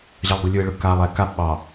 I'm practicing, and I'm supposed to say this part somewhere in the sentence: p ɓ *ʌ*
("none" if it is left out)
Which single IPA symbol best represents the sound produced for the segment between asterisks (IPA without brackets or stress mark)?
ɑ